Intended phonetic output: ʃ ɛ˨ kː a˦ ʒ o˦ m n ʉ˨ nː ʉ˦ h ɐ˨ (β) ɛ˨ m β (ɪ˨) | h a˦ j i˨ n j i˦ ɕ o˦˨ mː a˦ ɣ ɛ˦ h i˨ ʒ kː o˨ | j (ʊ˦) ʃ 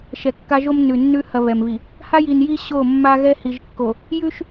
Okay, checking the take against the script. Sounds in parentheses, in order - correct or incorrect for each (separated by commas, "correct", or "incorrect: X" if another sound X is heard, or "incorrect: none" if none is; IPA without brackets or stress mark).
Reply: correct, incorrect: i˨, incorrect: ʉ˦